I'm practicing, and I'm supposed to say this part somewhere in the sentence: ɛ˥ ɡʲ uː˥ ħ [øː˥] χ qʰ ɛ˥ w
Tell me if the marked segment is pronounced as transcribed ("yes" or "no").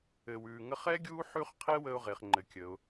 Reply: no